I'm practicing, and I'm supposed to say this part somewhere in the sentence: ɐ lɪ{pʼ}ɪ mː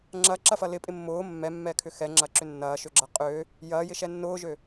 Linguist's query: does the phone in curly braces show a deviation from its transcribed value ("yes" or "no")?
no